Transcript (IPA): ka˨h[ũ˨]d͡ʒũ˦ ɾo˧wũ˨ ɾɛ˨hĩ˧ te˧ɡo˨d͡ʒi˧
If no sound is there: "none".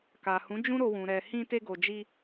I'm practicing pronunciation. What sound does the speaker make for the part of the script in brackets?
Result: ũ˨˦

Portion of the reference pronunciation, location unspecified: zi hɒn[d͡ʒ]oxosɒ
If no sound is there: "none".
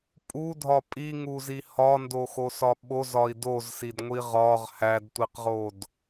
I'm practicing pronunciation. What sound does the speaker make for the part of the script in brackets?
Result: d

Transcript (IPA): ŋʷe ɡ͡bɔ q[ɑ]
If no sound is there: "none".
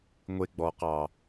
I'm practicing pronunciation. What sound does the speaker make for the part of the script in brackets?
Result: ɑ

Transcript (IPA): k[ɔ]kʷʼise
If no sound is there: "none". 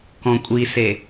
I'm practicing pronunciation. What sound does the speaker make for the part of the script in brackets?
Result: ɔ̃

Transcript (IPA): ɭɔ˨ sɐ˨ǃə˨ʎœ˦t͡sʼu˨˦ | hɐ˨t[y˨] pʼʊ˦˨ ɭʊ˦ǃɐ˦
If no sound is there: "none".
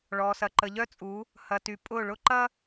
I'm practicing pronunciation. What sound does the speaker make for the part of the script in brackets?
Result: y˨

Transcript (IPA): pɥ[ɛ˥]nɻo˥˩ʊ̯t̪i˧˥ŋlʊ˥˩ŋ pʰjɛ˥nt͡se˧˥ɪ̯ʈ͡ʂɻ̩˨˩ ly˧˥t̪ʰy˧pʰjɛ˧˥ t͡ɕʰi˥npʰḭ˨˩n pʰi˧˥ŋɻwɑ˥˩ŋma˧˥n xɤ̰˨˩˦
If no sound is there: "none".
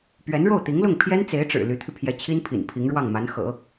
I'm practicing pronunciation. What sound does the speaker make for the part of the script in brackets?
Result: ɛ˧˥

